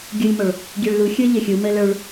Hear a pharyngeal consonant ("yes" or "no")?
no